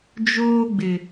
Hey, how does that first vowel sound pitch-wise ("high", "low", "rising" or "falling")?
high